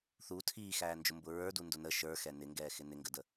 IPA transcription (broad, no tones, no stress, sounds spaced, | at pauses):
θ u tʰ iː x æː n d͡ʒ ʊ m b ʊ ɹ ə˞ d u n d ʊ n ə ʃ ə˞ x ɛ n ɪ ŋ ɡ ɛː x ɪ n ɪ ŋ ɡ ə d ə